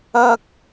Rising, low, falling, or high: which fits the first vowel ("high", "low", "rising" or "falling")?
high